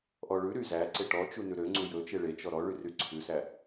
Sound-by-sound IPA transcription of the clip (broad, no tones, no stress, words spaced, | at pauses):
ʔɔɭʉɾy zæǀe ʈɔt͡ʃu nʉɾøŋ͡ǀu jɵt͡ʃe ɭet͡ʃɔ ɾɔ ɭyryǀʰʉsæ